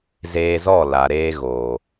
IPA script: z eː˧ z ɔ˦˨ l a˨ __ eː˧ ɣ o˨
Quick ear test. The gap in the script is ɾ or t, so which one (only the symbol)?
ɾ